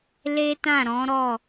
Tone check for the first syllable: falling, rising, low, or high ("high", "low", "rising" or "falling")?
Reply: high